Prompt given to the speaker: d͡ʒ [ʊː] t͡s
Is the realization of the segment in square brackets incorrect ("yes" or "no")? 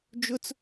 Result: yes